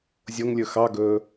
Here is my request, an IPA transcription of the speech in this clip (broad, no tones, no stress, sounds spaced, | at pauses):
zʲ o ŋ lʲ ɵ x ɑ ɡ ɵ